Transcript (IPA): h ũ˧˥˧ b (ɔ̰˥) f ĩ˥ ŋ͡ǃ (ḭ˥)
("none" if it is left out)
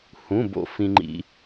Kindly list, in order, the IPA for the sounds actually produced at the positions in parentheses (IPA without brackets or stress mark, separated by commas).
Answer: o̰˥, ḭ˥